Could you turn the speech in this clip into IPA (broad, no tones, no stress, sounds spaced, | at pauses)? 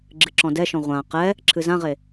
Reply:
ɡ͡ǁ ɨ ǁ ɔ̃ d ɛ ʃ ɔ̃ ʁʷ ã q ɛ | ǁʰ ɨ z ã ʁ e